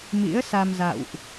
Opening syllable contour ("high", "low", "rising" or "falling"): rising